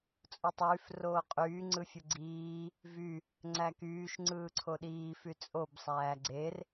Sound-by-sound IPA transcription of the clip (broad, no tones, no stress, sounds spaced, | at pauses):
t͡sʼ u tˤ yː f r oː qʼ yː ŋ͡ǀ ɯ fʲ ɯ ɡ͡ǀ iː | v y | ŋ͡ǀ æ k yː ʃ ŋ͡ǀ ɯː ǀʰ o ɗ iː f y t͡sʼ o b sˤ æː ɡ͡ǀ e r